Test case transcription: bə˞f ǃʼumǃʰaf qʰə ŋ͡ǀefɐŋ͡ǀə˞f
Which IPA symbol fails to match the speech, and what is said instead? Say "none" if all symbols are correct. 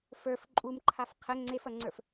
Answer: b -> f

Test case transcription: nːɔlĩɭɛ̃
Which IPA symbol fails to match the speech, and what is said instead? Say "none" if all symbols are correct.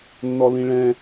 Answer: none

